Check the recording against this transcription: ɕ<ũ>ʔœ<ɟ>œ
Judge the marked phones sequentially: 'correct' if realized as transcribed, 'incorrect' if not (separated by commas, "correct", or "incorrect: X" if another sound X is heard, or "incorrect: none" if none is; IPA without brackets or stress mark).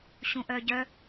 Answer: correct, correct